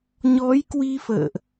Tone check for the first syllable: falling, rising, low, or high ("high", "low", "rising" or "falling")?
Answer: rising